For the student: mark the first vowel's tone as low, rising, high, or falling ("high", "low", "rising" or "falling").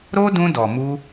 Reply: high